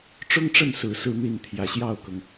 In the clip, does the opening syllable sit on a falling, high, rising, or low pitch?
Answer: high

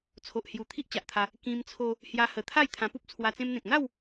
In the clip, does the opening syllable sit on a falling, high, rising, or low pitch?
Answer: low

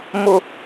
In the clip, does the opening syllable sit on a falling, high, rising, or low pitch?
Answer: high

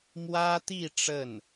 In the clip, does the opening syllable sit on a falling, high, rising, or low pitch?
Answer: high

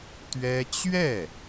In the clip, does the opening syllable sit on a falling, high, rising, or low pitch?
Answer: high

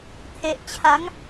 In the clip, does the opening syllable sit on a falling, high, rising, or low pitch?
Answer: low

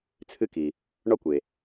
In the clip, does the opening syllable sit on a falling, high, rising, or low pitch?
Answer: high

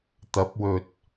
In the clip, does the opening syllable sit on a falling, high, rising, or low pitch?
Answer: rising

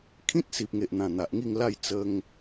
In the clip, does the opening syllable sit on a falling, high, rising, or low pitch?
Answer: high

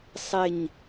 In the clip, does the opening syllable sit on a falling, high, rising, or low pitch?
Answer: low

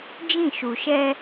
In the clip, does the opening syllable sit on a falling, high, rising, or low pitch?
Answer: falling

